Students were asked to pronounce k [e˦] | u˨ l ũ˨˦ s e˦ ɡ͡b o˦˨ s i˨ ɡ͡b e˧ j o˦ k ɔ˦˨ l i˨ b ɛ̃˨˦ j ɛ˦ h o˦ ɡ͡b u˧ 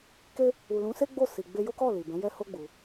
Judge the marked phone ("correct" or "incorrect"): correct